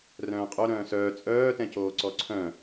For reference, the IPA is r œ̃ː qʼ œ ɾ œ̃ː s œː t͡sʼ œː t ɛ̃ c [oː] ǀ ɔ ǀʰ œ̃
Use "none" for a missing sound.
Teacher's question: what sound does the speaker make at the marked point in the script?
oː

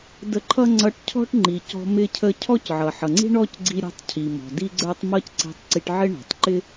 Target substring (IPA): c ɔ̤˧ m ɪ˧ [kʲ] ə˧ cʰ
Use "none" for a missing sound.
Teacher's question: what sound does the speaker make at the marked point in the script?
cʰ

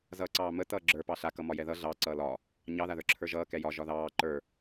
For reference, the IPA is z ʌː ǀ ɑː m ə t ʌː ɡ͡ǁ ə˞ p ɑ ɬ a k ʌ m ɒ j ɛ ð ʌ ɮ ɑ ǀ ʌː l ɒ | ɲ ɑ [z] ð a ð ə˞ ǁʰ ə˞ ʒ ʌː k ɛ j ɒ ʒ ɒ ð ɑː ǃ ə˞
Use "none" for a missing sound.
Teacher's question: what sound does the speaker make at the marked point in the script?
none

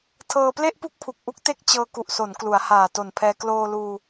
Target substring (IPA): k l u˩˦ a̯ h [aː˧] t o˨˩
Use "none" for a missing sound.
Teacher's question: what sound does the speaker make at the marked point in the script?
aː˨˩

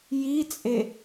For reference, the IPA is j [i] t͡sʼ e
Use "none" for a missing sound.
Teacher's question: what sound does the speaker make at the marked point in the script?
i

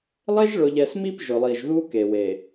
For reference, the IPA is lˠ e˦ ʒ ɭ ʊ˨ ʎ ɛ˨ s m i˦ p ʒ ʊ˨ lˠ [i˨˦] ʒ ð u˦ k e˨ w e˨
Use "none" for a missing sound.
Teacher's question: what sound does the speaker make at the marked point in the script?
i˨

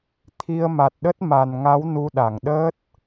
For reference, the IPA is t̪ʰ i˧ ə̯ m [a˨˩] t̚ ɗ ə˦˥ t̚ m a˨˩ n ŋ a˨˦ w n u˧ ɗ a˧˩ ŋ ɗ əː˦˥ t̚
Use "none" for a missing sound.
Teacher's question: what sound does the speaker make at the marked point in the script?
a˨˩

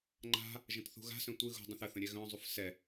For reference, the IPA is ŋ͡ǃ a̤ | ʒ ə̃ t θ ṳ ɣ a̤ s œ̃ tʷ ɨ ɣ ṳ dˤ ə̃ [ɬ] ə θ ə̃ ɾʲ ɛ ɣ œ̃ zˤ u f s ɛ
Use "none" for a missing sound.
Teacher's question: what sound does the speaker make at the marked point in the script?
θ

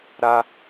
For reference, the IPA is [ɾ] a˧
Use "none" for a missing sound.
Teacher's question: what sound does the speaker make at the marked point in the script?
ɾ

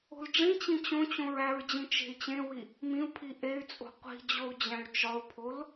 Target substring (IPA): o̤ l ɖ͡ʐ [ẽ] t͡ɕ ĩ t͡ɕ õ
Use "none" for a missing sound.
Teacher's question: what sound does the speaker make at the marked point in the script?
ĩ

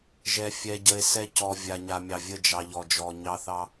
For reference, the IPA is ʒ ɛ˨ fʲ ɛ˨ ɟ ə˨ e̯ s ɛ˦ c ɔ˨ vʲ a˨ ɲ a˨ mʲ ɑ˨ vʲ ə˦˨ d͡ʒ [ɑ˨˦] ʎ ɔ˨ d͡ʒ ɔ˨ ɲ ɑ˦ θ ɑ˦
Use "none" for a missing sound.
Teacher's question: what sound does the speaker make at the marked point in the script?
ɑ˨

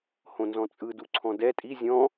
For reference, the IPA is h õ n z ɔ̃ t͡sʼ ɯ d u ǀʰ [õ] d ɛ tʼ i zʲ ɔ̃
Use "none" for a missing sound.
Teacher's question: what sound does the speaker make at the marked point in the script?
ɔ̃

